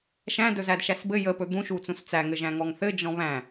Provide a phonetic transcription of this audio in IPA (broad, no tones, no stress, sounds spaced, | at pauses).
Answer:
ʃ æ̃ d ɵ z æ d ʃ æ s b ɘ j ə p ɵ d̪ ũ ʃ u t͡s ũ s t͡s æ ŋ ɘ ʒ æ̃ ŋ ɔ ŋ θ ɘ d͡ʒ ɔ̃ β æ̃